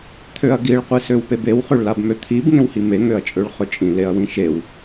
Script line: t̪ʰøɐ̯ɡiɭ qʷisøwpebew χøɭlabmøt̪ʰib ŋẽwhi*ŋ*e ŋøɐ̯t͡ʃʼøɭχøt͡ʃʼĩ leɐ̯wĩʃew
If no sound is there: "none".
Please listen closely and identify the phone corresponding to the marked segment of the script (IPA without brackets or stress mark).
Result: m